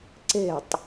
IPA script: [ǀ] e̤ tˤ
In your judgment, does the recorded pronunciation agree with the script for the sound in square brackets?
yes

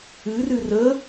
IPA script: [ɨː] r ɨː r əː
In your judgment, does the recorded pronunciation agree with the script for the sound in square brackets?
yes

